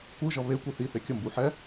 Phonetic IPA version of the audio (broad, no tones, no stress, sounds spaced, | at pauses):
kʷ ɯ ʒ ʌ β e kʷ i θ i θ e kʲ ʌ m b u ħ ɛ